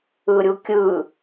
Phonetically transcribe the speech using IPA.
ɯ ɾʲ u kʲ ɯ

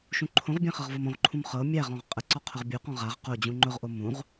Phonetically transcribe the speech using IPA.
ʃ ũ ǃʰ õ ʁ bʲ æ̃ χ ɤ ʁ v ɤ m õ ʁ ǃʰ ũ m χ ɤ mʲ æ ʁ ɔ̃ ʁ qʼ ə ǀ ɔ qʰ ʊ ʁ bʲ u q ɔ̃ ʁ a ʁ q o d͡ʑ ũ ŋ͡ǃ ʊ ʁ ʔ o m ũ ʁ

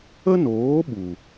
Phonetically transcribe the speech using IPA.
ə˦ n oː˨˦ ɓ u˨

